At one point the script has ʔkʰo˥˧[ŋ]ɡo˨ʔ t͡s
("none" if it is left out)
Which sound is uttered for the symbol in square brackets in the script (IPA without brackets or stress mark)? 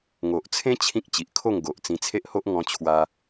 ŋ